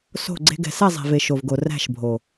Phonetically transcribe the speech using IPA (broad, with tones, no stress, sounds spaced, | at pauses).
s o̤˦˨ ɡ͡ǀ e̤˦ ɡ ɛ̤˧ s ɛ˦˨ zˤ e̤˨ v e˨ ʃ o˨ v ɡ o˨ r æ̤˦˨ ʃ bʱ o˨